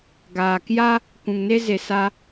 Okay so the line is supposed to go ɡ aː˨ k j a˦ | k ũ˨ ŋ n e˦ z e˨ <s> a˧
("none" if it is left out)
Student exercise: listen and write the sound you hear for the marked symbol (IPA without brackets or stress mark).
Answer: s